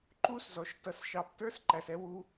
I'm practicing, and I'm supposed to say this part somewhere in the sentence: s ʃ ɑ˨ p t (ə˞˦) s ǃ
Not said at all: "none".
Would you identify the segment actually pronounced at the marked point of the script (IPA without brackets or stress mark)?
ə˞˦